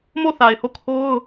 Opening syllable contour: falling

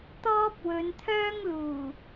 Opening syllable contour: high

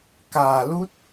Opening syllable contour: low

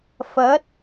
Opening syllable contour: rising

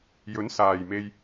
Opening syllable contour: rising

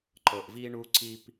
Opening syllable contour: low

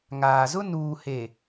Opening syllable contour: low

